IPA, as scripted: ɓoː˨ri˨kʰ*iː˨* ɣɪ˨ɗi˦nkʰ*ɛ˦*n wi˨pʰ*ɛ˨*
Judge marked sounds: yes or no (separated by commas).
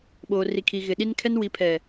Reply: yes, yes, yes